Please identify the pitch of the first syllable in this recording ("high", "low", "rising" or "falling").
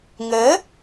rising